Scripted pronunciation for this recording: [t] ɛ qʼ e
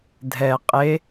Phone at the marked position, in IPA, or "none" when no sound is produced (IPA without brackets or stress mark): dʱ